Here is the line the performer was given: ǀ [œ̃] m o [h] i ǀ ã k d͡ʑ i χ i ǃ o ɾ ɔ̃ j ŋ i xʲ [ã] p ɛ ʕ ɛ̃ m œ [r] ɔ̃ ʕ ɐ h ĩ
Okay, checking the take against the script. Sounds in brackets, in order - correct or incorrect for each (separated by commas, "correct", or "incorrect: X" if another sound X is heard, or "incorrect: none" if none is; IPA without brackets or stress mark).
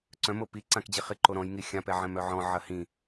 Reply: correct, incorrect: p, correct, incorrect: ʕ